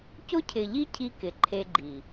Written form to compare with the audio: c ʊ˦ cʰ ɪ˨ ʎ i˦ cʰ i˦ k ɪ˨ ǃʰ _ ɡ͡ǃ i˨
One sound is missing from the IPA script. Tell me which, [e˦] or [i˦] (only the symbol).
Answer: e˦